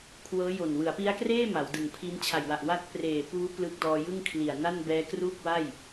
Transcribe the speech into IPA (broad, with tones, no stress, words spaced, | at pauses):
kʰwɤː˦˥jo˨˩n wɯ˩˦a̯pi˦˥a̯kreː˥˩ ma˩˦wdɯ˨˩ŋ pʰi˦˥n t͡ɕʰa˨˩jwa˨˩ʔwaː˦˥t̚ preː˨˩puː˦˥ plɯː˦˥k̚dɔː˧jɯ˥˩ŋ kʰli˨˩a̯na˥˩n bɛː˦˥kruː˥˩k̚wa˥˩j